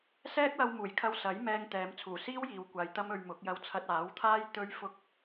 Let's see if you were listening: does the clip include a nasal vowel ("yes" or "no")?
no